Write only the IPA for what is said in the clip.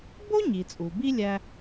b o˥ ɲ i˩ t͡sʼ u˩ b i˥ lʲ æ˧

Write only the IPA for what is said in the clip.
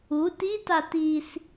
u t i t a t i s

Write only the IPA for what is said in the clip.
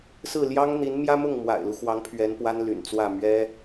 s ɹ̩˥˩ l j ɑ˥ ŋ n̪ i˧˥ n m j ä˥ m ʊ˥˩ ŋ m w a̰˨˩ ɪ̯ l u˦ x w ɑ˧˥ ŋ pʰ ɥ ɛ˧˥ n p w a˥ n l y̰˨˩ n t͡s w ä˥˩ m ɥ ɛ˥

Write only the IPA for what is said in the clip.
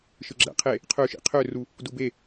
ʃ ɯ ɡ͡ǁ æ̰ qʰ e | qʰ ø ʃ ḭ qʰ ø r u | d u b e

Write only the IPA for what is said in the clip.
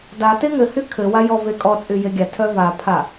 d a t e ŋ ɘ h y kʰ ɘ w a j ɔ v e kʼ ɔ t͡sʼ y j e ɡʲ a tʰ œ v a pʰ a

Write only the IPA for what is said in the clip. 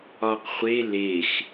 ɒ q χʷ e l e x

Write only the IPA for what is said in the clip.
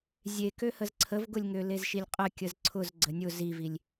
zʲ e k ø h ə z ǀʰ ə v ɡ ʊ lʲ ŋ ø l e z ʃ i lʲ qʼ ə kʲ ə z ǀʰ ʊ z ɡ͡ǀ ə nʲ ʊ z i v i lʲ

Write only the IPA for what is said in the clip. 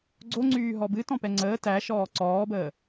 ɡ͡ǀ o ŋ͡ǀ yː ɦ ɔ b ɨ t ɔ̃ p ɛ ŋ͡ǀ əː t æ ʃ ɔː ǀ ɔː b əː

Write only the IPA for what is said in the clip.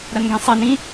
ɾ ɐ n ɡ ẽ sˤ e n ĩ

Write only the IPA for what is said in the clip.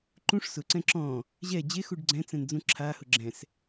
ǃ ũ ʂ s ʊ ǀ ɛ̃ ǁ ɔ̃ | ʑ ɛ d͡ʑ e x u ɖ ɡ͡ǀ ɛ̃ t͡s ɛ̃ n d͡z ũ ǁʰ a h ʊ ɡ͡ǁ ɛ̃ s

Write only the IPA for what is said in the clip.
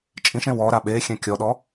t͡ʃʼ ĩ ʃ ẽ w ɔ ɾ a ɓ e xʲ ɛ̃ kʲ ɔ ɗ ɔ

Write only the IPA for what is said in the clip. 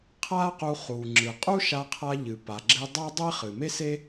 qʰ a˥ q u˧ χ u˩ ŋ͡ǁ ɨ˩ qʼ u˥ ʃ a˧ qʰ a˧ ʎ ɨ˩ p a˩ ɡ͡ǁ e˧ dˤ a˥ dˤ e˥ χ ɨ˩ m e˥ s e˥

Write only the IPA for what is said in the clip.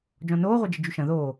d͡ʒ ɔ̃ n oː ʁʷ ɐ d͡ʒ ɪ d͡ʒ y ʃ ɐ̃ ð oː

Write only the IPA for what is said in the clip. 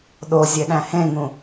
ɗ o zʲ e ɗ æ̃ h ẽ ŋ ũ

